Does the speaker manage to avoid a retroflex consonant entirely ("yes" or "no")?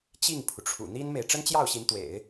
no